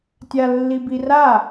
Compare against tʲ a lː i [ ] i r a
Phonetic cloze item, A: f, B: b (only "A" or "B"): B